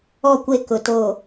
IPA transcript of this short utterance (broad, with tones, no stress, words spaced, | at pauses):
ɔ˦˨kʷe˦˨ kʊ˨ to˨